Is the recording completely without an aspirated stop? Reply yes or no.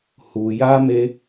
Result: yes